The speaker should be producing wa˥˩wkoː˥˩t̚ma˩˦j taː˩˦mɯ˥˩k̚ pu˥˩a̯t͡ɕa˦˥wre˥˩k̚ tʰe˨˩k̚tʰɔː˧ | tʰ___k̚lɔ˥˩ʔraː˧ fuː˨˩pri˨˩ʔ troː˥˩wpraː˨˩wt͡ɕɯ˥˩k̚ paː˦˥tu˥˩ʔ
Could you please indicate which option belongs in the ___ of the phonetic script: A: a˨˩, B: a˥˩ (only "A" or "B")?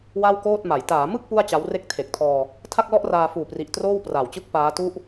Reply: B